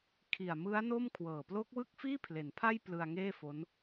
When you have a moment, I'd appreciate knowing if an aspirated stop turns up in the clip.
yes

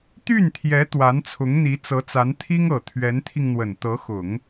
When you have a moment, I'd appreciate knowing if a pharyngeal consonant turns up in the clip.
no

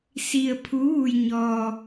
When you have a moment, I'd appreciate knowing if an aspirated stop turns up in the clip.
yes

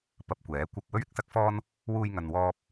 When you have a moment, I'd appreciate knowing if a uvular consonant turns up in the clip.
no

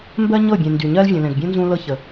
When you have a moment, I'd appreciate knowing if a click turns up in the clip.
no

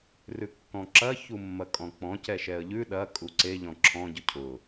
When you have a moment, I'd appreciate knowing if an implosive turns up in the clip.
yes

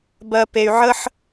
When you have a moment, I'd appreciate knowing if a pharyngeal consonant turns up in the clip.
yes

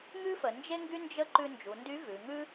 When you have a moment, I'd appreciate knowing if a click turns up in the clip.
yes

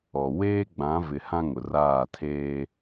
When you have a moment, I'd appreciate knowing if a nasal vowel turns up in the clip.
yes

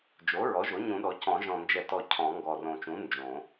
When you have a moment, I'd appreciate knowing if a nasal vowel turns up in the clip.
yes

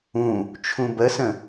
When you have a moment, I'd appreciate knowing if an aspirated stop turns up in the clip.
yes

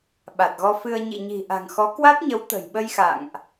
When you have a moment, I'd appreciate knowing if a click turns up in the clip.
no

